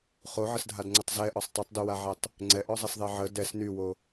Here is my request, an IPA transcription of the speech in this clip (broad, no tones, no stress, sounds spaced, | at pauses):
χ o ʕ ə s dʱ a d ŋ͡ǀ ə tˤ z ɛ ʔ ɔ sˤ tˤ ø tˤ d y w a ʕ ɛ tˤ | ŋ͡ǀ ɛ ʔ ɔ zˤ e s ðˤ e ʕ ə d ɛ s n y w o